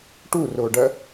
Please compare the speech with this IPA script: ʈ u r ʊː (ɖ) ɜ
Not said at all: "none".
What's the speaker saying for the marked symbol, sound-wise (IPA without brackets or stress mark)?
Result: ɖ